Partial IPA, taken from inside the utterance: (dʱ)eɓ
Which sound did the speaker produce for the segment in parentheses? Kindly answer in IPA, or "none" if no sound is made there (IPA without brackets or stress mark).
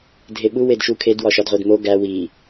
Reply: dʱ